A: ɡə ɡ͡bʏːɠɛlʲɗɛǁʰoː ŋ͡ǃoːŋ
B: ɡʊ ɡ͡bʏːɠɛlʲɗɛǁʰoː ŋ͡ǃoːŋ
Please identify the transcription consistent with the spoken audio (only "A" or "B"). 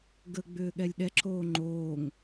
A